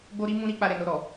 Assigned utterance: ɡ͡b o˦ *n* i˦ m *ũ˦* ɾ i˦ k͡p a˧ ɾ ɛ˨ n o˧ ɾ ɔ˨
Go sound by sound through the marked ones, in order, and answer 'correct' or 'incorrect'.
incorrect: ɾ, correct

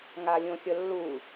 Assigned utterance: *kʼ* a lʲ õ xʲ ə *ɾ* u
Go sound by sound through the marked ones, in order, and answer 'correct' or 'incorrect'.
incorrect: ŋ, incorrect: lː

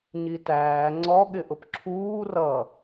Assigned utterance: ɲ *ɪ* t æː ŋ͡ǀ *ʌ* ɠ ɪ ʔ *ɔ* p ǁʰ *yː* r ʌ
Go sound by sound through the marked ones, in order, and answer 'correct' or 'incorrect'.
incorrect: i, incorrect: ɔ, incorrect: ʊ, incorrect: uː

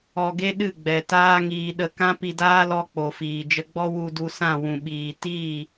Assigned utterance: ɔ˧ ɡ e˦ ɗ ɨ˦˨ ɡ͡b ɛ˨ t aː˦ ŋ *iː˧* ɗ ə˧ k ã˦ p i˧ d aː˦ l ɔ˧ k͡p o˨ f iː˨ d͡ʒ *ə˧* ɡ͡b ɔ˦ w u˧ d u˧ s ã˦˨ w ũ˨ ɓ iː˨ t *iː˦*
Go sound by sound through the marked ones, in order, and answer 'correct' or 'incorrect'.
correct, correct, incorrect: iː˦˨

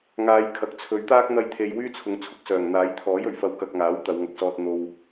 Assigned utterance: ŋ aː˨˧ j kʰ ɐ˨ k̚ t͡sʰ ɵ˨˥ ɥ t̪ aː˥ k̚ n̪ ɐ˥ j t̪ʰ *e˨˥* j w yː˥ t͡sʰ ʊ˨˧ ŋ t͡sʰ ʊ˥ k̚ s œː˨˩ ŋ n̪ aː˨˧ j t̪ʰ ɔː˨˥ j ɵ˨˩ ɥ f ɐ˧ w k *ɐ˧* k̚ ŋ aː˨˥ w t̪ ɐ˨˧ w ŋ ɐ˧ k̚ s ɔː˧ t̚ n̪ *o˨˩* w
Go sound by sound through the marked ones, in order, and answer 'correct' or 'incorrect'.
incorrect: e˧, correct, incorrect: o˧

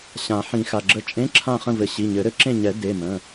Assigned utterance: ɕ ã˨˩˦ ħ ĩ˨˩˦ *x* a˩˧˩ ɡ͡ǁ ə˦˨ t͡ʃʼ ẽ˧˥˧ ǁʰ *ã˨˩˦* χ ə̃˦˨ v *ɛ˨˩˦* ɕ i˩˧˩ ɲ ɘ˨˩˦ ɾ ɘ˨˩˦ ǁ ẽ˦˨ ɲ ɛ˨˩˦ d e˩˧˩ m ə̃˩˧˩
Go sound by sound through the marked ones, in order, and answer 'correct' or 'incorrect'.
correct, incorrect: ã˦˨, incorrect: ɘ˨˩˦

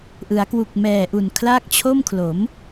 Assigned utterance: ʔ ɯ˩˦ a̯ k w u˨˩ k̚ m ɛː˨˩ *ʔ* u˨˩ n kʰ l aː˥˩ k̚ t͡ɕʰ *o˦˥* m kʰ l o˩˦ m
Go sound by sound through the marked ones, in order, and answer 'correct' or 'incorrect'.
correct, incorrect: o˥˩

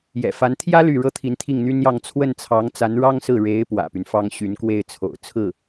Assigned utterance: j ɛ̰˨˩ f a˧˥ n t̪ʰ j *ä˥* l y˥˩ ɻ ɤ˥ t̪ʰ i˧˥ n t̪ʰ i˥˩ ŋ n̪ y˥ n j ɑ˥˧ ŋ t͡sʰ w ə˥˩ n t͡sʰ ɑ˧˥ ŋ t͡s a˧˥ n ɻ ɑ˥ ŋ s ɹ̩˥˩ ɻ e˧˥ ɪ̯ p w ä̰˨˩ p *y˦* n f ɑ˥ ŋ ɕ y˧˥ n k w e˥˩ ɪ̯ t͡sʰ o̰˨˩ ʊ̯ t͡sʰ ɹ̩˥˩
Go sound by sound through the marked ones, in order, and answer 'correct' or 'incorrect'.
correct, correct

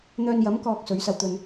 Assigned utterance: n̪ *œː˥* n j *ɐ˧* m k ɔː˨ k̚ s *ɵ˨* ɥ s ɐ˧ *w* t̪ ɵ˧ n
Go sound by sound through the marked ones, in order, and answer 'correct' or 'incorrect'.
incorrect: œː˧, incorrect: ɐ˨˥, incorrect: ɵ˨˥, correct

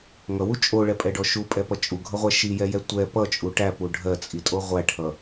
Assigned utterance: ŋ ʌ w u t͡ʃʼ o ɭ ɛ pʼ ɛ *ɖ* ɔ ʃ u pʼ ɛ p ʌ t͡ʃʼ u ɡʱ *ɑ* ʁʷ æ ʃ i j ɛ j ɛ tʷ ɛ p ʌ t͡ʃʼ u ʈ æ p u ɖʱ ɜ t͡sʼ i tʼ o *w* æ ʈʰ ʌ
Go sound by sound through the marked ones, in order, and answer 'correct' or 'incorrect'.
correct, incorrect: ʌ, incorrect: ʁʷ

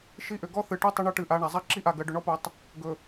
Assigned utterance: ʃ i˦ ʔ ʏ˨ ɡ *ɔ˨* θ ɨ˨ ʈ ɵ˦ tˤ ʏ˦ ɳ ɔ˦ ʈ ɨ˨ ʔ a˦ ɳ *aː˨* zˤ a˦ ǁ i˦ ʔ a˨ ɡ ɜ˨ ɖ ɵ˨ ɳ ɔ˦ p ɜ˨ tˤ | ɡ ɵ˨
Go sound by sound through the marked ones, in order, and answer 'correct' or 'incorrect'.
incorrect: ɔ˦, incorrect: a˨

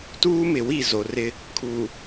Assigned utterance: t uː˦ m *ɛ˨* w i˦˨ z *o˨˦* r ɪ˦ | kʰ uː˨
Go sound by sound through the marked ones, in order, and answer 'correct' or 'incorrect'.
incorrect: ɪ˨, incorrect: o˨

